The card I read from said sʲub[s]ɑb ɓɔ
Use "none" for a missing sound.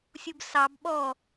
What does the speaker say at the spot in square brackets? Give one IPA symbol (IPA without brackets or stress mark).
s